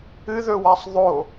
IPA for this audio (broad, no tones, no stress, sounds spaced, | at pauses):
ɨ ð ɵ w a sˤ ðˤ o